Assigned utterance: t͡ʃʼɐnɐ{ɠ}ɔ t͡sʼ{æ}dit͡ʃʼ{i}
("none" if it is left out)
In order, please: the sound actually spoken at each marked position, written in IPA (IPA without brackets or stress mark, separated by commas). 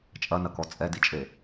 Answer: k, ɛ, e